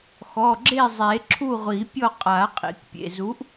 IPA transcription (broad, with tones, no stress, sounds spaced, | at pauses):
x ɔ˩˧˩ ɡ͡ǁ e˥˨ zˤ e˨˩˦ ǁʰ u˥˨ ʁʷ i˨˩˦ pʲ ɔ˥˨ qʼ a˨˩˦ qʼ ḭ˨˩˦ k pʲ ḛ˩˧˩ z u˨˥ ʔ